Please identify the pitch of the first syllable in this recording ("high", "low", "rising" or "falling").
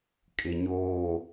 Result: low